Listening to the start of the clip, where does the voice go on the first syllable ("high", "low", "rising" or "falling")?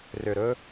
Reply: low